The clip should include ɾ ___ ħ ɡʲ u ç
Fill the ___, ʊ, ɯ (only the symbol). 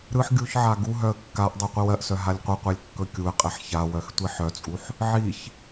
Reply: ɯ